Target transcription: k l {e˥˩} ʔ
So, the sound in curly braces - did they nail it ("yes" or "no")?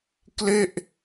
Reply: yes